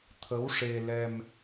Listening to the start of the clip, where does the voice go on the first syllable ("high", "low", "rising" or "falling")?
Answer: rising